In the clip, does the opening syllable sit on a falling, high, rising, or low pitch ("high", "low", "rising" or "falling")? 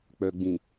low